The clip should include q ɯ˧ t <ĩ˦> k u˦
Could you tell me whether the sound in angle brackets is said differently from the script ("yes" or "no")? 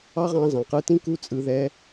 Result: no